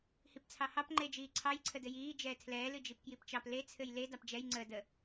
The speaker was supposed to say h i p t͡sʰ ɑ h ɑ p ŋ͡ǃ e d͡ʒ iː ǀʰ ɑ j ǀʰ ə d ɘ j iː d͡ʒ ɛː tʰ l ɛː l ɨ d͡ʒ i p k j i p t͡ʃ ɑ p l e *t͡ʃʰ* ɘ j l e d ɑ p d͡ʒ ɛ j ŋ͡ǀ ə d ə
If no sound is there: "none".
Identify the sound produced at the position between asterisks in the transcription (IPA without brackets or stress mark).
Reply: t͡sʰ